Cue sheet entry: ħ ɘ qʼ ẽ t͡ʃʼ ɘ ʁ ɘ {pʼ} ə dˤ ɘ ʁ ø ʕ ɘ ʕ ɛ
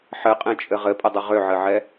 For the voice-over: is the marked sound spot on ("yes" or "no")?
yes